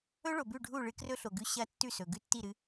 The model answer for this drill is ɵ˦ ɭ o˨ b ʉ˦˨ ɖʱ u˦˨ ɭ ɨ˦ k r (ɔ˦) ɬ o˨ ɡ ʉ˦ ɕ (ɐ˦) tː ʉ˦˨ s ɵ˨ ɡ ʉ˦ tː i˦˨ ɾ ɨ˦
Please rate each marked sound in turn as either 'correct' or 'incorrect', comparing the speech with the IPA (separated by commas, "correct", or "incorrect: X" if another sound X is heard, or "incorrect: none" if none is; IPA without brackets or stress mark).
incorrect: ɵ˦, correct